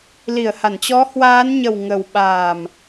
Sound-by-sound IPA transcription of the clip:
li˧˩ə̯ha˧˩nt͡ɕɔ˨˦ hwaː˨˦n ɲə˨˩w ŋə˨˩wɓaː˨˩m

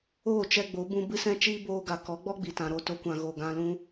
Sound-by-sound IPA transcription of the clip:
oː˦˨t͡ʃɛ˧ɡ͡bo˨˦ bũ˧ bɨ˦sɛ̃˦ t͡ʃiː˦boː˧ɡa˨ kɔ˨˦ɡ͡bɔ˦ɡ͡bi˨tã˨ ɾo˨to˨˦kʷã˨ ɣo˨ɡã˧lũ˦

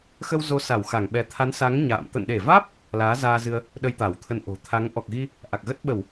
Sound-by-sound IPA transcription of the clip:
xə˧wzo˨˦ sa˧˩wxa˧˩ŋ ɓɛ˨˦ t̪ʰa˨˦nsa˨˦ŋ ɲa̰ː˧˨m t̪ə̰˧˨n ɗe˧˩vaː˦˥p̚ | laː˨˦zaː˧zɨ˧ə̯ | ɗə˧jt̪a˧˩wt̪ʰə˧n ʔo̤˨˩ t̪ʰa˨˦ŋ ʔɔ˨˩k̚ɣi˧ | ʔa˨˩k̚ ɣə˦˥t̚ɓə˧˩˨w

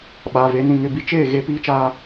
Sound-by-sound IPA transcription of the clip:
ɓaː˨ve˨˦nĩ˨ŋɪ˦˨ bi˦t͡ʃeː˦˨ ɣe˦ piː˦t͡ʃaː˦

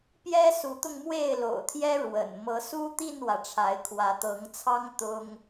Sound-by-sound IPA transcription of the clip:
pjɛ˦su˨˦t̪ʊ˧ŋ mwe˥˨ɪ̯lo̰˨˩ʊ̯t̪ʰjɛ˦ ɻwə̰˨˩n mɤ˨˦su˦t̪i˥˨nwä˩ ʈ͡ʂʰa˨˦ɪ̯kʰwä˨˦t̪ɤ˨˦ŋt͡sʰɑ˦ŋ t̪ʊ˦ŋ

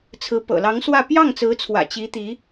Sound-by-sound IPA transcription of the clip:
t͡sʰɹ̩˧˥pɤ̰˨˩ lɑ˧˥ŋswä˥˧ pjɑ˥˩ŋt͡sɹ̩˧˥ t͡sʰwä̰˨˩t͡ɕi˧˥t̪i˧˥

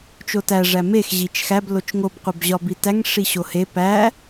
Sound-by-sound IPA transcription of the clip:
t͡ʃotæ ʐæmex ʑit͡ʃxæb lot͡ʃŋob qʷebʑɒbitæŋ ʂiɕohe pæ

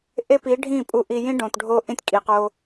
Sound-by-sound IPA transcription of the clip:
ʔe˦pi˨˦ɖʱĩ˦˨ pʼu˨ʔi˨jĩ˦ ɖõ˨tɖʱo˦ ʔĩ˦tʲkʼi˨qo˦

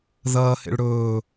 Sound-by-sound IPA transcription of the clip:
ðɐː hḛɭɽɵː

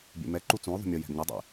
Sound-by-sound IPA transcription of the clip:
bʲḛmɛǃu t͡sũo̯ðˤṳ mʲʊjɛ̤ɡ ɲʊdˤḛ

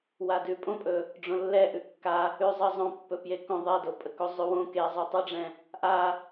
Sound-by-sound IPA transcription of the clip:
wadʉpʼõpʼɵ | ɖ͡ʐõlːɛ ʔʉkːa | ʉzˤə zˤõpːɵ pjekõ ðˤɛdo pʼəkozˤʉwõ kezˤʉtˤɛɖ͡ʐɛ̃ | ʔa

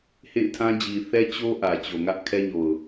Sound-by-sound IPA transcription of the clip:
hḛ˦˨ɪ̯tʰã˦d͡ʑi˨ θɛ˦ t͡ɕo˦ ʔä˨t͡ɕo˨ ŋä˦ʔkʰɛ˦ɲo˨ʊ̯

